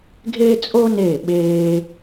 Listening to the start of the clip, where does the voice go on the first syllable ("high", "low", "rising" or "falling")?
high